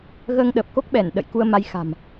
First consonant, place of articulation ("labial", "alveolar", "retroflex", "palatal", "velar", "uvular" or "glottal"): velar